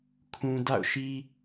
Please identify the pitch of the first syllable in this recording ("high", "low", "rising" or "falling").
low